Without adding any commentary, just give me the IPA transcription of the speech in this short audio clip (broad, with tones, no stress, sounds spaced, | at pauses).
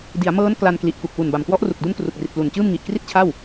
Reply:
d i˩˦ a̯ m ɤː˦˥ n k l a˧ n k l i˨˩ ʔ k u˨˩ k̚ w u˨˩ n b a˨˩ m k w ɔ˦˥ ʔ r u˨˩ k̚ d u˦˥ n k r u˨˩ k̚ r i˨˩ t̚ p l u˨˩ n t͡ɕ ɯː˥˩ m ŋ i˨˩ ʔ k r i˥˩ t̚ t͡ɕʰ a˥˩ w